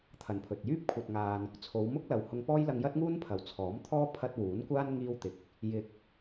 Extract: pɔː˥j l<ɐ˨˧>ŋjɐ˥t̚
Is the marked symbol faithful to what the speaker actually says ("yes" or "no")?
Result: no